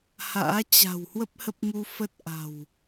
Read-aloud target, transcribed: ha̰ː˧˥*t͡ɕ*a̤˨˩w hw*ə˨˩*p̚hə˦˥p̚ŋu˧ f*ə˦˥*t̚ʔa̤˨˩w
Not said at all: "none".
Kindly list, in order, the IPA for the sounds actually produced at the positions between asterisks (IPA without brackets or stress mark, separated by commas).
t͡ɕ, ə˦˥, ə˦˥